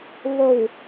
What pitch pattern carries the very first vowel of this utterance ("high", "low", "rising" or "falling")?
low